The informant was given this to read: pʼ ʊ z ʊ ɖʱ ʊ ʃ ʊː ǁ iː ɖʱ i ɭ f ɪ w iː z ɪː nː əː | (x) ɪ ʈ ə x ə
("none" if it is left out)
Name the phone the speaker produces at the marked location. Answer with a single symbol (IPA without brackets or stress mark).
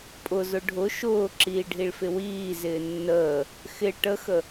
x